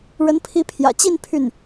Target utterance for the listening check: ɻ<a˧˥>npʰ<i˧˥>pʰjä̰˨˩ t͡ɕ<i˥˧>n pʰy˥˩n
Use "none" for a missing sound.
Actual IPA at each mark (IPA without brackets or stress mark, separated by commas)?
ə˧˥, i˧˥, i˥˧